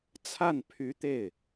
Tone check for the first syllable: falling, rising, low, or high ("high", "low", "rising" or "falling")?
falling